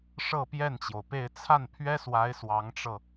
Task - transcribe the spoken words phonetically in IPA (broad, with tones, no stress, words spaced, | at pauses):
ʂɤ˥˧pjɛ˥˩nt͡ɕjo˩ʊ̯pe˥˧ɪ̯ t͡sʰa˥˩n pʰɥɛ˥swa˧˥ɪ̯ swɑ˧˥ŋʈ͡ʂɤ˧